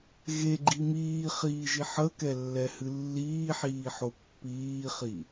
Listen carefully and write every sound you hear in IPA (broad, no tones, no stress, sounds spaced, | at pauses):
ɣ e ɡ͡ǃ i m iː χ iː ʒ i ħ ə k ɛ lː ɛ h ɨ lː iː ħ iː ħ o pː iː χ i